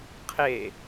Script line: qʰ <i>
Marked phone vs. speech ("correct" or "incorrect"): incorrect